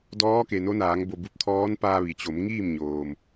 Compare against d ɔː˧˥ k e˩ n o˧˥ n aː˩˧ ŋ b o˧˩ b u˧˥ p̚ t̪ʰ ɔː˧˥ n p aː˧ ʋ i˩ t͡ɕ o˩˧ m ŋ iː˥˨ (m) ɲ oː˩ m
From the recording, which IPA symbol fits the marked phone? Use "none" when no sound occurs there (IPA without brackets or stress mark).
m